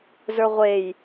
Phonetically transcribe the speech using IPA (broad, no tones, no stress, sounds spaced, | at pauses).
z ə˞ ʁʷ e j